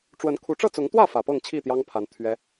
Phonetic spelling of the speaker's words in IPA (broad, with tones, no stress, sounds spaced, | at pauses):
ʈ͡ʂ w ə˨˦ n kʰ u˨˦ ʈ͡ʂ ɤ˥˨ t͡s ʊ˨˦ ŋ t̪ w ä˥˨ f ä˨˩ p ɤ˥˨ ŋ t͡ɕʰ i˥˨ t̪ j ɑ˦ ŋ pʰ a˨˦ n t̪ʰ ɥ ɛ˦